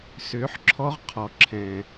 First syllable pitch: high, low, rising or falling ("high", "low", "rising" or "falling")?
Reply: rising